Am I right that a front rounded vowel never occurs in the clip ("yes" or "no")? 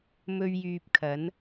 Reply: no